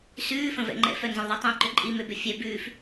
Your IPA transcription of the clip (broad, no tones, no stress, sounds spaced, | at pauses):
s ʉː f ə̃ v ɛ̰ ŋ͡ǃ ɛ̰ f œ n z ə̃ l ðˤ ɛ tˤ ɛ̃ ǃ ʏ ǃʼ i m ʏ b ʏ fʲ ɛ b ʉː f